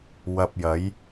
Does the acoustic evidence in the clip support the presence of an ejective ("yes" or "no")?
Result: no